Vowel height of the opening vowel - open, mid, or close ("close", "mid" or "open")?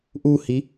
close